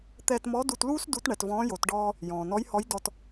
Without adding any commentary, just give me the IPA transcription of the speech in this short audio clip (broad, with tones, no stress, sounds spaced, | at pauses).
t̪ ɛː˧ t m ɔ˧˥ d u˧ t l uː˥ s d u˧˥ t ɳ ɛ˩˧ t v ɔ̃ː˧˥ j o˩˧ t ɖ ɔː˧ | j ɔ̃ː˩ n ɔ˧˥ j h ɔ˧˥ j d ɔ˧ t